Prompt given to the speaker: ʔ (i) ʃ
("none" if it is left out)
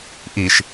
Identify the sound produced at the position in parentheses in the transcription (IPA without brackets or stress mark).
i